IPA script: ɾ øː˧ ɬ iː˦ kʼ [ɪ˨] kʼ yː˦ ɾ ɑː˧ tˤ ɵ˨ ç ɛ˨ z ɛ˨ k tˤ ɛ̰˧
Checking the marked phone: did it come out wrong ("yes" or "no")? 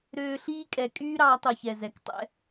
yes